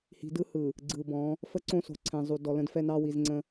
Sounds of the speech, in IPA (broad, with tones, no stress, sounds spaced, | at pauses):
h i̤˨ d ɯ˦ h ɯ˨ | ɡ͡ǀ ɯ˨ b ɔ̃˨˦ | f ə˦ ǀ õ˦ s o̤˨ ǀʰ ɛ̃˨ zˤ u˨ d ɔ˨ l ə̃˦ d f ɛ˦ n ɑ˦ w i˨ z ŋ͡ǀ ə̃˦